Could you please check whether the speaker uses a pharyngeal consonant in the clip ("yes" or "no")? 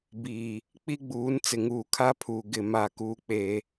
no